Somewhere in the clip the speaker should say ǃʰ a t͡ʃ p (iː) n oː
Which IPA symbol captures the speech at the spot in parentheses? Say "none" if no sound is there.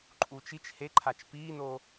iː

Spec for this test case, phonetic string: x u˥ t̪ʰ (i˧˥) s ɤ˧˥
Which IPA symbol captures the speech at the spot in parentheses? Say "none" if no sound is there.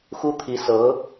i˧˥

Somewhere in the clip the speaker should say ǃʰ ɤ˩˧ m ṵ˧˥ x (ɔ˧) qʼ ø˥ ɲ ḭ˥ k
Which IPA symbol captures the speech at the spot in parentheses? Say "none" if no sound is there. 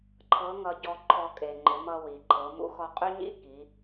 ɔ˧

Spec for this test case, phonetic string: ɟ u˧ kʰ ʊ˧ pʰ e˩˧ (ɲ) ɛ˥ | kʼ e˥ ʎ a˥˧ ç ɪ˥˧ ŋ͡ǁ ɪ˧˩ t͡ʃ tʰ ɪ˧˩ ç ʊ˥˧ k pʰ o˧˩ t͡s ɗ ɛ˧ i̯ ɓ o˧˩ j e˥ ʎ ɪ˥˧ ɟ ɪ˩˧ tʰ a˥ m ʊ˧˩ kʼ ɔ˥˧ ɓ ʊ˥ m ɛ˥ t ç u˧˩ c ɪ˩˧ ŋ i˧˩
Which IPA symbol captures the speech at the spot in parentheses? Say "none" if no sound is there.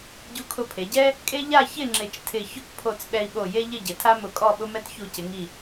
ɟ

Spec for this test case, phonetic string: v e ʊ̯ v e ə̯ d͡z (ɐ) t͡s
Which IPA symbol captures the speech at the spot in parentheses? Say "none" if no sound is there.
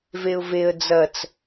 ɐ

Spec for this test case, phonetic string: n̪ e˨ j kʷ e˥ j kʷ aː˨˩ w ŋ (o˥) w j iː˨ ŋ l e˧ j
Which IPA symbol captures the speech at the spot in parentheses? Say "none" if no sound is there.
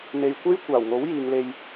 o˨˥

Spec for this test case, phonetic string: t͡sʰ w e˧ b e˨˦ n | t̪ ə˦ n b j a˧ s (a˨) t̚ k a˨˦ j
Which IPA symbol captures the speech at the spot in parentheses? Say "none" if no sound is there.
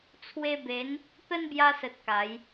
ə˨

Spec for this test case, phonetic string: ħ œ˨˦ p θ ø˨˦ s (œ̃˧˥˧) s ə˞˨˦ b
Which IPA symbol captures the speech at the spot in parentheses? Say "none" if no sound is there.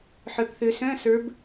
œ̃˧˥˧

